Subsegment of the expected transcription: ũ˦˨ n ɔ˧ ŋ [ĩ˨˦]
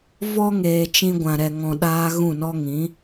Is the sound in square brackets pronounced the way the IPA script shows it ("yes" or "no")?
yes